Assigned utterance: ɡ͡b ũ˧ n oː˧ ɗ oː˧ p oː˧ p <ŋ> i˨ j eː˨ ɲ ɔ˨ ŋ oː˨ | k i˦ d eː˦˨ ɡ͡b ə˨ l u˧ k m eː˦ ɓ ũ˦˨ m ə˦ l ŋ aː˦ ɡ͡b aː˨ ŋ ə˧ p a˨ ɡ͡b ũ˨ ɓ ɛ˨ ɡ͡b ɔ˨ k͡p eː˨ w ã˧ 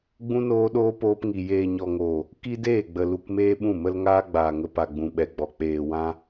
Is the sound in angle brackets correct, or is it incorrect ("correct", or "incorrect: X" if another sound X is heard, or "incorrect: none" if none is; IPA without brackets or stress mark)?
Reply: correct